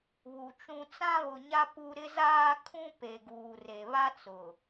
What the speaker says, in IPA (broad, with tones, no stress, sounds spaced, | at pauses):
β u˨ t͡ʃ ũ˦ t͡s ã˦ β ʊ˨ ɲ a˦ p u˦ ɾ ɪ˦ z aː˦ kʰ ũ˦ p e˨ ɡ uː˨ r e˨ β a˦ t͡s ʊ˨